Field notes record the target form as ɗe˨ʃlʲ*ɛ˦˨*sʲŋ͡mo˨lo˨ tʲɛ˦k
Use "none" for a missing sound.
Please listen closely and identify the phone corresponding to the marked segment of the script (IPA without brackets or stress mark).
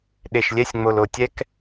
ɛ˦˨